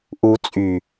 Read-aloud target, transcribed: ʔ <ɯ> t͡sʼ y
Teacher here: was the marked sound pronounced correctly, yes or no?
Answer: no